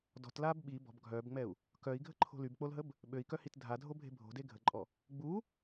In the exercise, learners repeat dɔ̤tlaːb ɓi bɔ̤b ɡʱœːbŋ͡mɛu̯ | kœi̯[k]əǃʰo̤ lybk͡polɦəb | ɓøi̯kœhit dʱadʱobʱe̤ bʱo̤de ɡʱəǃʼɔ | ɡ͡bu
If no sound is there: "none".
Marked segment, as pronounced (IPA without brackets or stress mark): ɡʱ